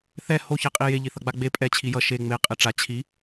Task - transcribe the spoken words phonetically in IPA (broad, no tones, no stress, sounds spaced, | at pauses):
θ ɛ h o ç ɛ qʼ i j e ʎ i θ ʌ ɡ͡b a ɡ͡b e pʼ ɛ t͡ɕʰ i j ʌ ʃ e ŋ͡m e qʼ e ʈ͡ʂ a t͡ɕʰ i